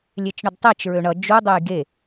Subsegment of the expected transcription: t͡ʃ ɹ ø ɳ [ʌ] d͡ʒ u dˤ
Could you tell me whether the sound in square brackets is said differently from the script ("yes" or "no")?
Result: no